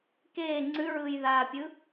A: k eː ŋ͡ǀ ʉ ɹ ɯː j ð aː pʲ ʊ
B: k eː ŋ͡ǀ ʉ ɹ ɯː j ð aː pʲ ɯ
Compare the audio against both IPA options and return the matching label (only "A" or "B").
B